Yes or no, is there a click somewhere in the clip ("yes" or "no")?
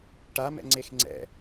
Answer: yes